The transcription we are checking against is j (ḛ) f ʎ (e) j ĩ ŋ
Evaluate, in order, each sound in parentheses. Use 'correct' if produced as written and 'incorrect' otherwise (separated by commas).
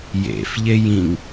correct, correct